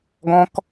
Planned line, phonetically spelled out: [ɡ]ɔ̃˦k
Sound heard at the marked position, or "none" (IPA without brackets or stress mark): ɡ